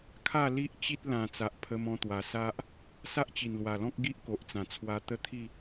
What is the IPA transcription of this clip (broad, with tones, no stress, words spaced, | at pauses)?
kʰa˥˧li˦ʔ t͡ɕi˦t̚ lã˨˩ t͡sa˨ʔpʰə˧mɔ̃˧t̪wa˨˩ sa˦ʔ | sa˦ʔt͡ɕi˨˩nlwa˨˩lɔ̃˦k̚ ɡi˦ʔko˨ʔt͡sã˨˩ t͡sʰwa˧t̪ə˦t̪ʰi˥˧